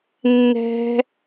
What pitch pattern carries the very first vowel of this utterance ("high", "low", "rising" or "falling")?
high